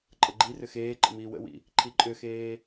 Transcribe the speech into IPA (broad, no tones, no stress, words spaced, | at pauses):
ǃʼəɡ͡ǃirʏ xeːǃə̰ miːwə̰wḭ | ǃʰiǃʼʏxeː